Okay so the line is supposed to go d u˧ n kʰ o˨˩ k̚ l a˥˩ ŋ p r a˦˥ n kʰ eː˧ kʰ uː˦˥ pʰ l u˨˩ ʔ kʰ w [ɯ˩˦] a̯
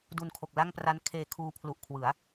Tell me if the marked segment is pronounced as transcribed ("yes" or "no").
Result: yes